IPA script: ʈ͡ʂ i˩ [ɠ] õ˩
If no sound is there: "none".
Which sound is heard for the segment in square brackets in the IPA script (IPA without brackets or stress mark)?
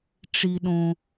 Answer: ɗ